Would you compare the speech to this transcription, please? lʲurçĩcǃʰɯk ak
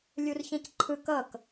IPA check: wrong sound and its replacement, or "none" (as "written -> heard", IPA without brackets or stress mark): a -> ʌ